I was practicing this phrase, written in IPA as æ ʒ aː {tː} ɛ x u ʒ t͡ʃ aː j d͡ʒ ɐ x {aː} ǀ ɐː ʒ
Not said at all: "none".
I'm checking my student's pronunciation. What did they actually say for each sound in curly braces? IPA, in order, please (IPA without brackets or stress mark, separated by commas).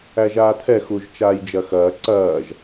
t̪ʰ, ɐː